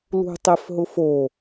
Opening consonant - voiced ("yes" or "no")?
yes